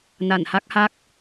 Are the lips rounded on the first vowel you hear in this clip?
no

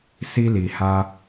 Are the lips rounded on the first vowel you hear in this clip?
no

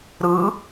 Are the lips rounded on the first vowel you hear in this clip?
no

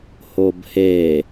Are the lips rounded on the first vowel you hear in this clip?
yes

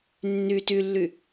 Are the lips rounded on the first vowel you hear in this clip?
yes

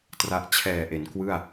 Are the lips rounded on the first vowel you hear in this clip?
no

